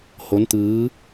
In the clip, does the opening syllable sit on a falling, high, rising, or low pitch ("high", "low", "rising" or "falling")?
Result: rising